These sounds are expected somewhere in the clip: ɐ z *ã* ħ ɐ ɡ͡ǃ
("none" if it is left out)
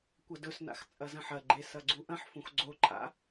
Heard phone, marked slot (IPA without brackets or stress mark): ɐ̃